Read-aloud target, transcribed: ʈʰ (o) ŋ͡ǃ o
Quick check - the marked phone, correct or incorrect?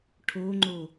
correct